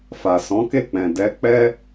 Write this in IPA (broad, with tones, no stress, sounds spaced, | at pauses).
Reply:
f a˨ s ɔ̃˨˦ k e˦˨ k͡p ɛ̃˨ d ɛ˨˦ k͡p ɛ˦